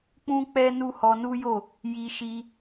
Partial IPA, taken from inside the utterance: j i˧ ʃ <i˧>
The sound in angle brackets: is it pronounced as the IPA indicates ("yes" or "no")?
yes